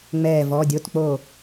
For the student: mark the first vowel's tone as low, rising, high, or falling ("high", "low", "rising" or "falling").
falling